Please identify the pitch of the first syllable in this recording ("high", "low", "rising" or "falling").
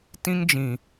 high